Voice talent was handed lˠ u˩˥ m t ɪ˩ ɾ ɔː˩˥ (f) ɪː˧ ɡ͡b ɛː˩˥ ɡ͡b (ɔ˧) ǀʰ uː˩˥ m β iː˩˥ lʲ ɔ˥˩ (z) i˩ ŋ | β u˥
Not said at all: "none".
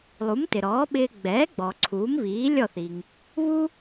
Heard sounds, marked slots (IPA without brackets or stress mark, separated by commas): ɓ, ɔ˩, θ